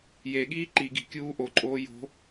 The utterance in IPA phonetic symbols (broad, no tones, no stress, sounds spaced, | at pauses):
j e ɠ iː ǃ i ɡ i̤ kʲ uː ʔ o ǃʼ oː j o̤